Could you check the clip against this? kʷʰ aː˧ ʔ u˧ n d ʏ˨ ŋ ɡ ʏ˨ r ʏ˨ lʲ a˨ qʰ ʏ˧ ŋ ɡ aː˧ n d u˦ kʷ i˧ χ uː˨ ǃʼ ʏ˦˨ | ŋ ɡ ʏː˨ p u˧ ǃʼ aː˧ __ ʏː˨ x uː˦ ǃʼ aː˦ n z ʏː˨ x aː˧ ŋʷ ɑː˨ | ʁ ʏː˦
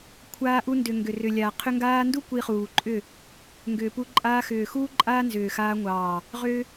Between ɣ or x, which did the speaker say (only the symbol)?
x